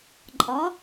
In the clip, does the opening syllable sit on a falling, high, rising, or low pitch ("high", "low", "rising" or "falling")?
rising